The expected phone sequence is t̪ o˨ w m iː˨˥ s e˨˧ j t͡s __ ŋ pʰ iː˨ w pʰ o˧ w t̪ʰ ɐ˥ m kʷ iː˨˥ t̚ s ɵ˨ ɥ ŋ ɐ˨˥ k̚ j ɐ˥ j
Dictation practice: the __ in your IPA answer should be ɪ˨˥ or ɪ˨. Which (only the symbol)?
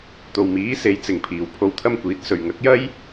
ɪ˨